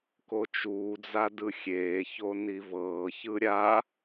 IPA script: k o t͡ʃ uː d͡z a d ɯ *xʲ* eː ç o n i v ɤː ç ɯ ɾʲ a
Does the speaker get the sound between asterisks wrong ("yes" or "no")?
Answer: no